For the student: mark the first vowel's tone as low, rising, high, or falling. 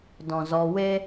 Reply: low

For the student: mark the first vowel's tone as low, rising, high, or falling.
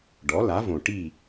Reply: rising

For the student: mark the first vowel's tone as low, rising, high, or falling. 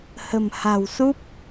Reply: low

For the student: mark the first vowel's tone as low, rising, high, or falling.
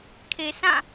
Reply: low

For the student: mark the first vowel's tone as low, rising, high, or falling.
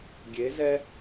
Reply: rising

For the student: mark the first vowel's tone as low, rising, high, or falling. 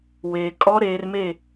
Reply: low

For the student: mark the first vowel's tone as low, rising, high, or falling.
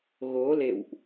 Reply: rising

